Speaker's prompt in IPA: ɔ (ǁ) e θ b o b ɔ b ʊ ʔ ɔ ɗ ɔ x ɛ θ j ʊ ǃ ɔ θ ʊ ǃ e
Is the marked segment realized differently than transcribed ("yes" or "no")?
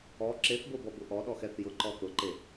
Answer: no